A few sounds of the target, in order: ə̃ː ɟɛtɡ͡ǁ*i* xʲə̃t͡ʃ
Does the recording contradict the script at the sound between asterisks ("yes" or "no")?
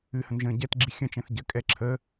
no